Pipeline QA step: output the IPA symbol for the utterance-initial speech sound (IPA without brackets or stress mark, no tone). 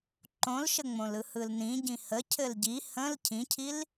ǃ